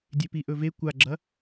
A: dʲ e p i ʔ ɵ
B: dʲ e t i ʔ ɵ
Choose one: A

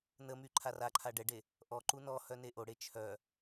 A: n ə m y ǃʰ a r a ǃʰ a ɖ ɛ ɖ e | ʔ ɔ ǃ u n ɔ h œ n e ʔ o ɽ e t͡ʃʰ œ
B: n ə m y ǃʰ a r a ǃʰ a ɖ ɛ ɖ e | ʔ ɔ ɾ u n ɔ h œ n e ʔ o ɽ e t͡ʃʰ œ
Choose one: A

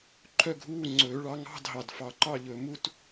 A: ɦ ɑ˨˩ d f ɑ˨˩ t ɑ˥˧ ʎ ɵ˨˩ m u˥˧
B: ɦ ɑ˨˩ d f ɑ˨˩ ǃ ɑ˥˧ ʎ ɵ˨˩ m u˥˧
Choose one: B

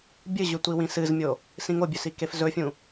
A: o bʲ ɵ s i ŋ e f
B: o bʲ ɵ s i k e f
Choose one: B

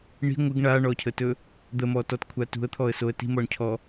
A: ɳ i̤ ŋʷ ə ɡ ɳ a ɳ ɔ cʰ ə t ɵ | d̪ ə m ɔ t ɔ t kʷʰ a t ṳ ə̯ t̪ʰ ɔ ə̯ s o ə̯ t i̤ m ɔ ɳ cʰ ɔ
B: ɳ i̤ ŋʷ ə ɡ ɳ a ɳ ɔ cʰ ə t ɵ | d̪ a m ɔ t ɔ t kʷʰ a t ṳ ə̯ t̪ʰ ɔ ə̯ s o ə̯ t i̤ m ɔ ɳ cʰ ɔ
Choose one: A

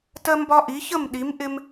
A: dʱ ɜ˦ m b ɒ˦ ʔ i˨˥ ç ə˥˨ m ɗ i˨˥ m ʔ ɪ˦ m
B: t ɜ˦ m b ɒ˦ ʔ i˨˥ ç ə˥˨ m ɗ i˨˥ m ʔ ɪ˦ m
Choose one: B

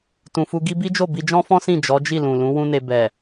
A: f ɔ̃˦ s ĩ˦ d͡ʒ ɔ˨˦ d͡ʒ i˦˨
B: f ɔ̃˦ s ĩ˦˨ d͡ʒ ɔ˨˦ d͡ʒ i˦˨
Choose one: B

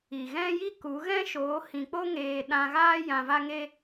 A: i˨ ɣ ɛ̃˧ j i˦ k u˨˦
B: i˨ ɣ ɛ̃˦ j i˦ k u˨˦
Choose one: B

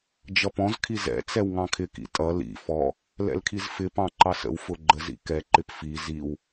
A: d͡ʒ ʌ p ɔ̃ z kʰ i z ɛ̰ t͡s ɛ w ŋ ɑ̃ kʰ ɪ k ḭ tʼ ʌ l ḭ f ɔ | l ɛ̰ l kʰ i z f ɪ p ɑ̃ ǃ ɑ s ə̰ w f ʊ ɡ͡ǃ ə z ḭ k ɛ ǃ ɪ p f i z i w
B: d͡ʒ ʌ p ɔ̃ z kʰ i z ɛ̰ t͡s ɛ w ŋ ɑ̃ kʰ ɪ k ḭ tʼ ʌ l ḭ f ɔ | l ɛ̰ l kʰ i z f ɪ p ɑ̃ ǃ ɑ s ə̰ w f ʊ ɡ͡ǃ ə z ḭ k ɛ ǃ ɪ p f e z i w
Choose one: A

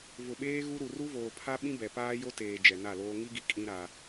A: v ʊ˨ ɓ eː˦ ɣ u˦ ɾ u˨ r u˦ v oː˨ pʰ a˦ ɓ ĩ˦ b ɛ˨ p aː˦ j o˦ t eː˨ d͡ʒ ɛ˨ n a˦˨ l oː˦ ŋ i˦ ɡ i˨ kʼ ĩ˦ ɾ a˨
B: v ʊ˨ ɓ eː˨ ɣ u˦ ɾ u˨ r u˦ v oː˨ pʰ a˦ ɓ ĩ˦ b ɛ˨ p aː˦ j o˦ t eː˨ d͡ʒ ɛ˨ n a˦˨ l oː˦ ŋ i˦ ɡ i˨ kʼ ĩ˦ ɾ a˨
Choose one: A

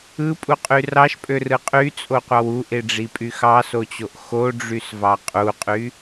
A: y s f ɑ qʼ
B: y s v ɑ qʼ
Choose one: B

